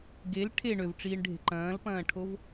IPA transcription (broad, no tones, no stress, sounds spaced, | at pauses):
ɡ e l ʈʰ e ɳ ø v ʈ͡ʂ iː ɳ ɖʱ e̤ ǃ ɐ̃ː l p ɐ̃ː ʈʰ o v